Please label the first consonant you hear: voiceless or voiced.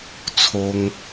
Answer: voiceless